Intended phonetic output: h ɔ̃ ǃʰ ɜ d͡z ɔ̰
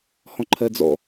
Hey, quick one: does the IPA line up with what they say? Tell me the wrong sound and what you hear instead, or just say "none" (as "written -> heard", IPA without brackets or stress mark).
none